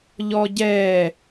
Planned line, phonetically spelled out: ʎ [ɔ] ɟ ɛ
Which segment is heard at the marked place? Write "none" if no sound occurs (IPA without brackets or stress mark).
ɔ